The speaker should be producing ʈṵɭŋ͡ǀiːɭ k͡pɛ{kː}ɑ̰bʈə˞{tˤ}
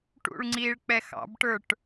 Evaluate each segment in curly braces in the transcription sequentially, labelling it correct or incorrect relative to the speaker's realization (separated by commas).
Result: incorrect, incorrect